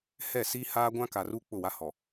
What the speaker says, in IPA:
hɛ˦˨siː˦haː˦ ɡʷã˦ka˨ruː˦ k͡pʊ˦˨wa˦hɔ˨

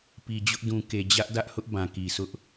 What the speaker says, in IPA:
pi˨d͡ʑʊ˦ʔ dũ˨ke˨ d͡ʑä˦ʔdä˦ʔhʊ˦ʔ bã˨ki˨sʊ˦ʔ

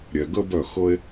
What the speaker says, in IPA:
ɾʲɛ˩ɡə˥ bœ˥˩xɤ˥e̯

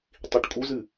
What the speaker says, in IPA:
tˤiʈkʼuzɨ

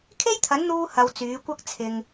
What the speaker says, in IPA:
kʰe˥jt̪ʰɐ˨˥nn̪uː˧ hɐ˧wt͡syː˨˥ kʷɐ˥k̚t͡sʰɪ˨ŋ

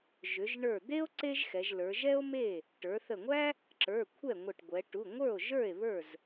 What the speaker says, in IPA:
ʒʏ˩˧ʒɳə˞˧˩d̪e˥o̯ ǀe˥ʒxɛ˩˧ʒlə˞˩˧ ʒɛ˥o̯me˥˩ | ʈə˞˩˧θə˧˩ŋʷæ˥ | ǁə˞˩˧˩ kʷʰɛ˥˩ŋʷə˧˩ʈɡʷɛ˩˧ ʈu˩˧˩ŋʷə˞˥˩o̯ʒə˞˥˩e̯ βə˞˥˩z

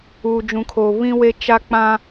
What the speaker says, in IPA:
uː˨d͡ʒũ˨kʰoː˨ βĩ˦we˦ t͡ʃa˦k͡pã˦

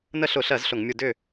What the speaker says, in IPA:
nə˦˨ɬʊ˧˩˧ɬɜ˧˩˧z ɬʊ˧˩˧ŋmʲu˦˨ dʏː˦˨

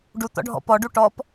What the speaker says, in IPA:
ɖu t̪ɔ̰ɖʱɔ̰pɔ ɖuʈɔp

